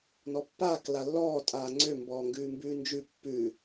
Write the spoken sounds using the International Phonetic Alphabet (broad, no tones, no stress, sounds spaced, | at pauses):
n ɔ pː aː k l a lː ɔː tʼ aː ŋ͡ǀ ø m b ɔː ŋ ɡ ʉː m b ʉː n d͡ʒ ʉ pː ʉ